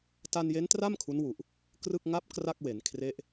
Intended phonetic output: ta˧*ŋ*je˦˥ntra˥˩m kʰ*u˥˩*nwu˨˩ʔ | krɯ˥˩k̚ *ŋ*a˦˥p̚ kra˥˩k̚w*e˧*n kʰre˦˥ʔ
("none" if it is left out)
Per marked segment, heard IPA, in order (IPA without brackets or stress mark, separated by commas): n, u˦˥, ŋ, e˩˦